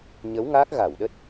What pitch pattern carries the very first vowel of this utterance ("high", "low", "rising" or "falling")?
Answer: rising